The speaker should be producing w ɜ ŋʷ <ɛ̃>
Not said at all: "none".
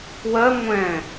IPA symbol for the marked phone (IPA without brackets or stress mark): ɛ̃